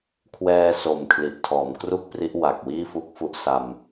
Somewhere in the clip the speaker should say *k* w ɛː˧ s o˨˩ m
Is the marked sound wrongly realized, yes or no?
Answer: yes